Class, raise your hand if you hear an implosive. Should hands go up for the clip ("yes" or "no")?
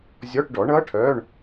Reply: no